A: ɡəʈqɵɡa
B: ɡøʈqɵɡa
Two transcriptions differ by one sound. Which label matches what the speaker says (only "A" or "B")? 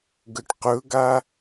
A